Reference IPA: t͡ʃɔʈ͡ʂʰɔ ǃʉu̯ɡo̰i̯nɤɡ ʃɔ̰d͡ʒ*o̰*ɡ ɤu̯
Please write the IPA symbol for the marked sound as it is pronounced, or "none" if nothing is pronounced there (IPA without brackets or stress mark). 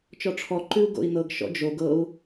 o